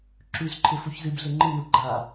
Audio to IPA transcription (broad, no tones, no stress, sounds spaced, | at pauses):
ǁ ʉ z ǃʰ ɪ f u ç z ɨ b ɮ ɪ ŋ͡ǃ ɨ n u ɡ͡ǃ a